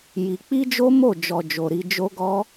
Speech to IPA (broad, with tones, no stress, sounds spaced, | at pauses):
j i˧ k͡p i˦ d͡ʒ o˦ m o˦˨ d͡ʒ ɔ˨ d͡ʒ o˨ ɾ i˧ d͡ʒ o˧ ɡ ɔ˧